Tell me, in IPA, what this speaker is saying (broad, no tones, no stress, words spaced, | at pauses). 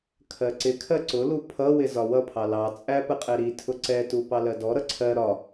kʰɜǀɪkʰɜ ǀʊlu pʰʌ wɪzɒwʌpʰɑ lɑt͡sʼæ pəqʼɛɾitʰʊ ǀɛtu pɑlɜdɔɾʌ ǀʰɜ ɾɒ